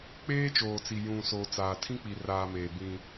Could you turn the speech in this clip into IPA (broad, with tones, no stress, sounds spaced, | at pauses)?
k͡p eː˦ t͡ʃ oː˨ t͡s i˨ j ũ˨ s o˨ t͡s aː˨ tʰ ĩ˦ k͡p i˨ r aː˨ m eː˨ b ĩ˦